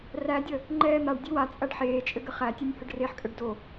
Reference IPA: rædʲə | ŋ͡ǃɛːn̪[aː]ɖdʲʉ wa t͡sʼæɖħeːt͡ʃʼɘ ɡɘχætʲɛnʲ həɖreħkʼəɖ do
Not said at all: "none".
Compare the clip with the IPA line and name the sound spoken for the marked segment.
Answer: a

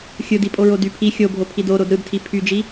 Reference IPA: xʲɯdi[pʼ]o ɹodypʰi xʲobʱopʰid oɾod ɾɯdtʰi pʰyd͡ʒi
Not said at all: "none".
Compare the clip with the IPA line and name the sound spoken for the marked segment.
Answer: pʼ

